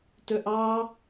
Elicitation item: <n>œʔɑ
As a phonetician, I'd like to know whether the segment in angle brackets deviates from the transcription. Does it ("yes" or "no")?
yes